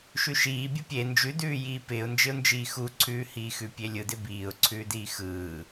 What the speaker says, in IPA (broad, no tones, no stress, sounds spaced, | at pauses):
ʃ ʉ ʃ iː bʲ ɯ pʲ e n d͡ʒ ʉ d ʉː j iː p ɪː ʊ̯ n d͡ʒ ɪ ʊ̯ n d͡ʒ iː x u ǀʰ ʉː h iː x ʉ pʲ e lʲ ɯ d ɪ b iː ʊ̯ ǀʰ ʉː d iː x ɯː